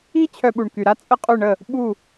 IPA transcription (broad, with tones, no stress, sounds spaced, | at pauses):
i˥ t͡ɕʰ œ˧ ɓ u˩ ɳ k y˩ ɾ a˥ t͡sʼ ə˥˩ qʼ ø˥˩ ɳ ə˥˩ | ɓ u˥˩